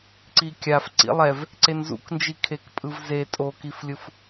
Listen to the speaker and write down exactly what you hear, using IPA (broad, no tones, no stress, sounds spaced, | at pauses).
ǀ i kʲ a f ǀ ḭ lˠ ɛ v | ǀ e n z ṵ k n d͡ʒ i kʰ e k pʼ ɯ v z e tʼ o k i f lʲ ɯ f